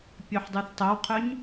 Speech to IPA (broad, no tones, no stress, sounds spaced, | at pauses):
pʲ œ ħ dˤ ʉ θ tˤ o w qʰ œ ɲ